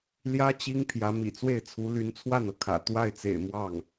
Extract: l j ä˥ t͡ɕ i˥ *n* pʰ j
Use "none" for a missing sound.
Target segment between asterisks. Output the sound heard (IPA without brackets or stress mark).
ŋ